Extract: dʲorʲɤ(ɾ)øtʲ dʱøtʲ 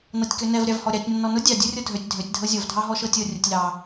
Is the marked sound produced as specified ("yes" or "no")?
no